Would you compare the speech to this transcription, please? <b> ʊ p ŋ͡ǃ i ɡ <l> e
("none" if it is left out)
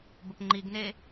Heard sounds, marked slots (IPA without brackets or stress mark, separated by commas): b, n